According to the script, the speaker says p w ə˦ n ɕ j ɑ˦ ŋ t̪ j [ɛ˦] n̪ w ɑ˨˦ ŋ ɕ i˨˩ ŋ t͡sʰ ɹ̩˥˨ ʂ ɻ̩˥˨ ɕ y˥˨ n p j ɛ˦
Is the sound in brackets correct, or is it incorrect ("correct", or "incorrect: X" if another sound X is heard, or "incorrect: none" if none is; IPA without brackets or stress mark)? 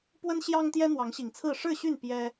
correct